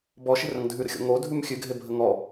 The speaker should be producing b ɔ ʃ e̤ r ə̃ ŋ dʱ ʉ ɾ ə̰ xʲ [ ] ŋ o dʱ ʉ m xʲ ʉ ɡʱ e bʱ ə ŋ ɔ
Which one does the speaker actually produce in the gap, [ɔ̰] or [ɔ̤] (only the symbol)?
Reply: ɔ̰